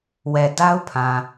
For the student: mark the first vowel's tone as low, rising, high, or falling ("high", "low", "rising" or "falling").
low